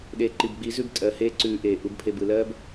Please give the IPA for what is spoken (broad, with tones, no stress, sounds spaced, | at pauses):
ɗ eː˨ ǃ i˨ b ɡ͡b i˨˦ z ʉ˦˨ b tʼ ɜ˨ h eː˦ ǀ ʉː˨ ʔ eː˨ ʔ u˨ b pʰ e˨ b ɯ˨ l ɜː˦ b